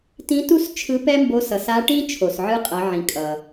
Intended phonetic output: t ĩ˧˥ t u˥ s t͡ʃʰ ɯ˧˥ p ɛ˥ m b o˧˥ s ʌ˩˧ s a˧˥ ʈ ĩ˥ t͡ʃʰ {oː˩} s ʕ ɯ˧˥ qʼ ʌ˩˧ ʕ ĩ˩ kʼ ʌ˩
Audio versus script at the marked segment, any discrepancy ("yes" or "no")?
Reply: yes